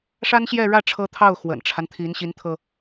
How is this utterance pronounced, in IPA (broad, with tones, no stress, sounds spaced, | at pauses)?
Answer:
ʂ a˥ n ɕ j ɛ˥˧ ɻ ä˥˩ ʈ͡ʂʰ ɤ˥ t̪ʰ ɑ˥˩ ʊ̯ x w ə̰˨˩ n ʈ͡ʂʰ a˦ n t̪ʰ i˧˥ n ɕ i˧˥ n t̪ʰ ɤ˧